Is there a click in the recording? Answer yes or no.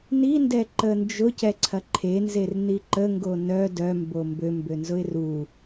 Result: yes